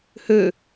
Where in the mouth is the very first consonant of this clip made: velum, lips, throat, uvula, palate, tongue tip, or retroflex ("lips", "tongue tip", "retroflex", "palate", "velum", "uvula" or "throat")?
throat